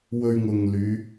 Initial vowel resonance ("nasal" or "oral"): oral